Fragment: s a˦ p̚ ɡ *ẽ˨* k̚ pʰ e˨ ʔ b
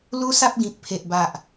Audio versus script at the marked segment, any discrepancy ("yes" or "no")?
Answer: yes